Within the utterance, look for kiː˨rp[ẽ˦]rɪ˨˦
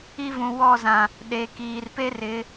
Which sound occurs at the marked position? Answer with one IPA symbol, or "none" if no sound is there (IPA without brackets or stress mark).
e˦